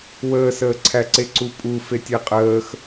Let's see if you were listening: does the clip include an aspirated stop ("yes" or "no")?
yes